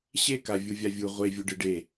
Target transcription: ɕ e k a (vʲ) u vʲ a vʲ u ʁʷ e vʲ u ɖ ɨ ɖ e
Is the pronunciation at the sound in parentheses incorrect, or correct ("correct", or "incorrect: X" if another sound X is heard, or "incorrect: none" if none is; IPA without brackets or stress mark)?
correct